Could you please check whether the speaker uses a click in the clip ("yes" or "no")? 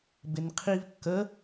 no